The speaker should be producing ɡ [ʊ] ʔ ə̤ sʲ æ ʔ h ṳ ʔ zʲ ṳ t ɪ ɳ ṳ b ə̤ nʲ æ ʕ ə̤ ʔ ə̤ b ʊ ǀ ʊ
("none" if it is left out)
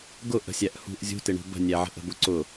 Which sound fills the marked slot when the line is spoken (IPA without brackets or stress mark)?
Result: ʊ